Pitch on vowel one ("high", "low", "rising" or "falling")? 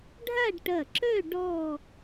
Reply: falling